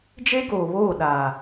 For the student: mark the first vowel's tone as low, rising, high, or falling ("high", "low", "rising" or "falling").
high